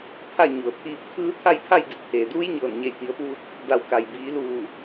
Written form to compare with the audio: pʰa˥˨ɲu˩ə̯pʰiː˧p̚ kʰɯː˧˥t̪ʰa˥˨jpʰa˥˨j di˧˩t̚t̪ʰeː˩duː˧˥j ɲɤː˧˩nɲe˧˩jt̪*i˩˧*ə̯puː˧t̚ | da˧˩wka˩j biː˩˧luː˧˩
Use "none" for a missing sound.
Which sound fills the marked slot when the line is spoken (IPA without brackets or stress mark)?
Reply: i˩˧